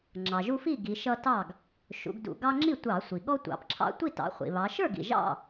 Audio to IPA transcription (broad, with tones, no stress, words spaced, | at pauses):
ŋ͡ǁɑ˩ʒu˦fi˥˩ɡi˩˧ ʃʌ˦tɑ˥˩ɡ | ʃṵ˩˧ɡdṵ˧˩˧ ɡɑ˦ŋ͡ǁi˥˩tʷɑ˧˩˧ sʷi˩ɠɔ˦tʷɑ̰˩˧p ǁʰɑ̰˦ tʷi˥˩tɑ̰˩˧ χʷḭ˩ βɑ˩˧ ʃə˞˥˩ɡḭ˩ ʒɑ̰˥˩